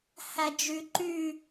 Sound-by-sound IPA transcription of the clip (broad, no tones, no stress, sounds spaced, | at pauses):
h æ d͡ʒ y ǃ y